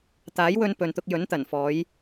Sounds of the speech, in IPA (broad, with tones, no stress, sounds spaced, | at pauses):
t̪ aː˨˥ j w ɵ˧ n p ɵ˨ n t̪ ʊ˧ k̚ j ɵ˨˥ n t̪ ɐ˨˩ n f ɔː˨˧ j